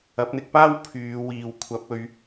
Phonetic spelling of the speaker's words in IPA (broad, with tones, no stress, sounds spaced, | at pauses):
ɐ˨˥ p̚ n̪ ɪ˧ k̚ p aː˥ w pʰ yː˨˧ w iː˨ w kʷʰ ɐ˨˥ p̚ ɵ˨˧ ɥ